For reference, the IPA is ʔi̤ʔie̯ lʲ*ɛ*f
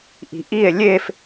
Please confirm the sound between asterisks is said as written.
no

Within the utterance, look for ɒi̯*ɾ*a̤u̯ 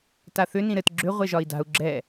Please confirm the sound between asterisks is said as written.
no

